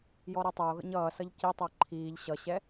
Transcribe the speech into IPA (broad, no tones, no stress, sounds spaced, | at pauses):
j ɔ ɾ e tˤ e o̯ ɣ ə̰ ɲ ʌː s ʌ ʎ c i tˤ əː ǃʰ iː ʎ ɕ ʌ ɕ ɛ